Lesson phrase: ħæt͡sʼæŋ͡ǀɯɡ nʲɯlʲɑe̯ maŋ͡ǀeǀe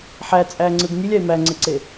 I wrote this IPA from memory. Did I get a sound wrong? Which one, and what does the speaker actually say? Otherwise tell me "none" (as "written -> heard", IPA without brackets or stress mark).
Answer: a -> æ